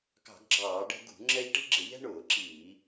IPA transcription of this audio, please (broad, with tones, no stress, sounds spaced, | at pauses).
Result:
k ɑ̤˧˩˧ ɡ ɡ͡ǁ ɑː˧˩˧ ɖ ɛ̤˦ ɡ ṳ˧˩˧ ŋ͡ǁ ɛ˦ ʎ ʈ i̤˦ ɡ͡ǁ ɪ˧˩˧ ʎ ɛ̤˦ ɳ ʊː˧˩˧ ǁ iː˧˩˧